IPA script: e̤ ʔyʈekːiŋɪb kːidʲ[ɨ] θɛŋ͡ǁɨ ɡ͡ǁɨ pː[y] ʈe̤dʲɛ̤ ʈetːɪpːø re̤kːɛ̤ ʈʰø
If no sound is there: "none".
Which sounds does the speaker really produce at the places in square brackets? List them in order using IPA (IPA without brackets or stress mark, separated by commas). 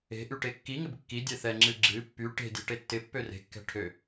ɛ, y